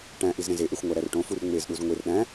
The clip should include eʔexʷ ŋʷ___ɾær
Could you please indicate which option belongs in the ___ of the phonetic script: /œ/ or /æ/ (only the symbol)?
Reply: æ